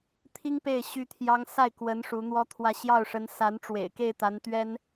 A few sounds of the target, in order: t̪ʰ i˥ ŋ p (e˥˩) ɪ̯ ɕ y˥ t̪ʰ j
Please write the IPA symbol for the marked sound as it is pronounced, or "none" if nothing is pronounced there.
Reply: e˥˩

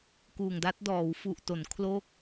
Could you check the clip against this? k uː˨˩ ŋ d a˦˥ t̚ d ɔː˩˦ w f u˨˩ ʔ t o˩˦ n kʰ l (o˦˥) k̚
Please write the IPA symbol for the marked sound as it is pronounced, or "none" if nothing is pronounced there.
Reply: o˦˥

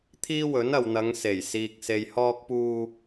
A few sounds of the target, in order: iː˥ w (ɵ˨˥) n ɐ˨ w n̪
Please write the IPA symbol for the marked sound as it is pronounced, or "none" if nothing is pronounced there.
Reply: ɵ˨˥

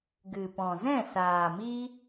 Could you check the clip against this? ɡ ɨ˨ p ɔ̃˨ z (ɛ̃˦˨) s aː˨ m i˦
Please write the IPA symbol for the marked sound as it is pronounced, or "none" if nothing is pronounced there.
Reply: ɛ̃˦˨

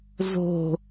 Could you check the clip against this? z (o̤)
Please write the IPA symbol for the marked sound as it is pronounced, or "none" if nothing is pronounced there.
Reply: o̤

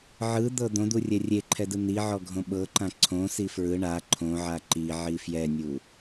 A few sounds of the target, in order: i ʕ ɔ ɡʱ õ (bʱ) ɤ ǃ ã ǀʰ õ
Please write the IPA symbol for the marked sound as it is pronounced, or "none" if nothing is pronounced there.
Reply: ɓ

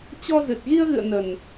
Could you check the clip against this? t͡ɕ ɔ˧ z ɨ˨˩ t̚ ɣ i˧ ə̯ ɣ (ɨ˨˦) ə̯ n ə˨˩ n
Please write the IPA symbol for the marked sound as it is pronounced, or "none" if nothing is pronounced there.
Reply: ɨ̰˧˨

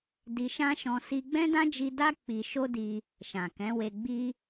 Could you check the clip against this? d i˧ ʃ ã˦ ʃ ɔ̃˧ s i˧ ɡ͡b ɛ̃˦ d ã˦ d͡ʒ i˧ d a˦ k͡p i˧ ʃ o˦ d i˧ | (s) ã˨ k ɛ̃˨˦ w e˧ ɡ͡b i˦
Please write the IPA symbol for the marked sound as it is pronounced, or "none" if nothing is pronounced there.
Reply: ʃ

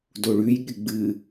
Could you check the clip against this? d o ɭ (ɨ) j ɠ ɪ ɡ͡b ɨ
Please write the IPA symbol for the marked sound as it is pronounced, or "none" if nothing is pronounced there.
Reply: ʉ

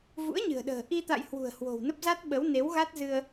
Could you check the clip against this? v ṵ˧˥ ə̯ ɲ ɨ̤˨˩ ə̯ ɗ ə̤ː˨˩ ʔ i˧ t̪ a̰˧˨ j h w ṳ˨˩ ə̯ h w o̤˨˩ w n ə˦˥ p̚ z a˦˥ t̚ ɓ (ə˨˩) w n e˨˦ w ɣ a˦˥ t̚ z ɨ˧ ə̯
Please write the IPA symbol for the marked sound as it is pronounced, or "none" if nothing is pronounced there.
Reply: ə˨˦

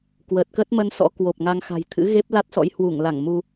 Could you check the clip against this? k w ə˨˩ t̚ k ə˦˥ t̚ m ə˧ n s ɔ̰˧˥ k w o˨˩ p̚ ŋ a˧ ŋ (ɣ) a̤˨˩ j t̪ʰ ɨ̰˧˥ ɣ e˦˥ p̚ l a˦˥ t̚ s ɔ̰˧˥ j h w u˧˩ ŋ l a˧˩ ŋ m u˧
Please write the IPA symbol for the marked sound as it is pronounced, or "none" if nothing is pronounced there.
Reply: x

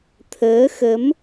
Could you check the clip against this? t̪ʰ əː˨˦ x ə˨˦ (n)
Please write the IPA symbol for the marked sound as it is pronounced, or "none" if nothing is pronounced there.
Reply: m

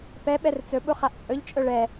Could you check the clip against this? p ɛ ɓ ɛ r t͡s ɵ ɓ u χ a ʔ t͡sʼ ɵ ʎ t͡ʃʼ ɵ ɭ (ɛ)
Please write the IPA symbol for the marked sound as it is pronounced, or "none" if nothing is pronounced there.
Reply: ɛ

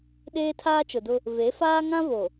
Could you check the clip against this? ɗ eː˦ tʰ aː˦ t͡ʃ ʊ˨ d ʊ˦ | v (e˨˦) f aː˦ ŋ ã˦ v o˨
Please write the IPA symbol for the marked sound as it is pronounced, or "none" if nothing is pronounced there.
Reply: e˨˦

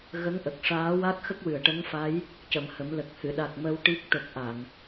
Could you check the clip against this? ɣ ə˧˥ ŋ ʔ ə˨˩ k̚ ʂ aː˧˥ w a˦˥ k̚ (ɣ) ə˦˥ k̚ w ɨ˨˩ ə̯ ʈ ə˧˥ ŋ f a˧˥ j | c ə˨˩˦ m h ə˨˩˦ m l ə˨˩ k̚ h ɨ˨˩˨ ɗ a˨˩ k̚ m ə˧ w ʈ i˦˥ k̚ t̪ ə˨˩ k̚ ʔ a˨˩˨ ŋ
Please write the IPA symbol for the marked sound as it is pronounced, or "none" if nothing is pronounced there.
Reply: x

